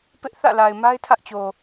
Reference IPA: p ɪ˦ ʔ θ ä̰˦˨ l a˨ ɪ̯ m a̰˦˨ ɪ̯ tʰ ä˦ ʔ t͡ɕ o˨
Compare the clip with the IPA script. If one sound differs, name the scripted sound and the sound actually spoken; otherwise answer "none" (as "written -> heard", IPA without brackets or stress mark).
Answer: a̰˦˨ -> a˦